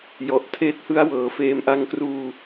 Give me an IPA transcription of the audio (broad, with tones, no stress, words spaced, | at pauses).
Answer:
jɔ˨˩ʔ tʰeː˦˥t̚hɯ˦˥a̯ wɤː˩˦feː˧m ʔa˧ŋkruː˧